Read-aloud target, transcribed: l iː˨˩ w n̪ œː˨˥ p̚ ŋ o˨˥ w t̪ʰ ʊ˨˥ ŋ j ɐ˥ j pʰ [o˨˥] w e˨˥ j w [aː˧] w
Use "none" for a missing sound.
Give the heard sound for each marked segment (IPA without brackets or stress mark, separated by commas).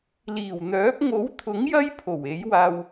o˨˩, aː˧